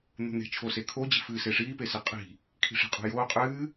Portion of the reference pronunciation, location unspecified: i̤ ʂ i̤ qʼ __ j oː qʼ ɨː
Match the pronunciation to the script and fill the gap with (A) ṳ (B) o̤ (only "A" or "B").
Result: B